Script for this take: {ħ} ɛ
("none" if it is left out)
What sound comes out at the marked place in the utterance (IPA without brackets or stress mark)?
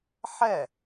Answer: ħ